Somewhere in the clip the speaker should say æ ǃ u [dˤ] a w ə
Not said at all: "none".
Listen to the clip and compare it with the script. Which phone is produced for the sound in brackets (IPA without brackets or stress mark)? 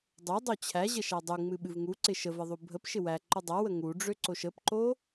dˤ